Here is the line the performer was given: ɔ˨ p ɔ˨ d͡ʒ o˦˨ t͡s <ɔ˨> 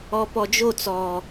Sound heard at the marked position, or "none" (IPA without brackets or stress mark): ɔ˨